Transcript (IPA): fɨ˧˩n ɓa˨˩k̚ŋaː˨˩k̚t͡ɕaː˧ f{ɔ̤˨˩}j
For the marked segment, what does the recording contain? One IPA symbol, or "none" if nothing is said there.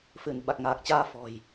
ɔ̤˨˩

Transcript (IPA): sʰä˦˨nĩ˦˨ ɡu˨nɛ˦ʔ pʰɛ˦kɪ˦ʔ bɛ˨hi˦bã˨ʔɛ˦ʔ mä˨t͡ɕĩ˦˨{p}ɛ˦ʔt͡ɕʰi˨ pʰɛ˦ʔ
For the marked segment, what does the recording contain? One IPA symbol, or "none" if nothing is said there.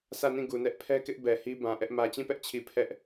p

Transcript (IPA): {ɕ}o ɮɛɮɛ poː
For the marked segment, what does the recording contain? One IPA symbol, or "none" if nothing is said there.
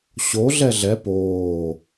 ɕ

